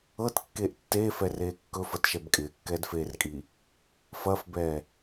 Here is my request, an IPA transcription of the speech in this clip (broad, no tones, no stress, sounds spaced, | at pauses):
ɤ t kː eː ʔ tː eː f ɛ r eː kː ɵ f ɐ t ʃ ɛ b kʼ ɪː kː ɛː d f eː r kʼ i | f ɐː f b ɛː